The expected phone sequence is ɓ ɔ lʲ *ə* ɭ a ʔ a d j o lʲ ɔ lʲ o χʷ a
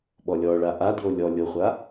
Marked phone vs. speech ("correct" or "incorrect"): incorrect